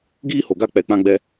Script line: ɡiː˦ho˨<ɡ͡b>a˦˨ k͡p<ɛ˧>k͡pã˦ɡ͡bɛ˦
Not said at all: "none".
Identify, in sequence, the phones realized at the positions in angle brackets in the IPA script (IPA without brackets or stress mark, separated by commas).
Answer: ɡ, ɛ˧